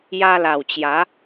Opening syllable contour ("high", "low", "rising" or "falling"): high